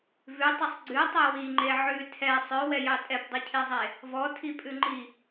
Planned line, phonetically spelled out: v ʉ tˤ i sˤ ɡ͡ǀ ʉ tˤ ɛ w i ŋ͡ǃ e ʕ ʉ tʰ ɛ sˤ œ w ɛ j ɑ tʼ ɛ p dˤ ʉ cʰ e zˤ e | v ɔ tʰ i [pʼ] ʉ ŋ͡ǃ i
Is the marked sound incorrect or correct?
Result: correct